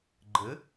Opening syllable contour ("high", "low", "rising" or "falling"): rising